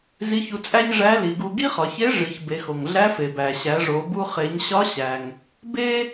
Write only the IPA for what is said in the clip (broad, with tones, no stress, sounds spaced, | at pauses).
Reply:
z i˧˥ ç u˧ t͡sʼ æ˥ ɲ ʐ æ˧˥ l i˩˧ ɡ u˧ ɡ i˥ χ ɒ˩˧ ç e˧˥ ʐ i˩˧ ç b e˩˧ x o˩ ŋ ɮ æ˧˥ f e˩ b æ˩ ɕ æ˩˧ ʐ o˩˧ b u˧ χ e˩˧ ɲ ɕ ɒ˧˥ ɕ æ˩ ŋ | b e˥